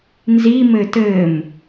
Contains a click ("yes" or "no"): no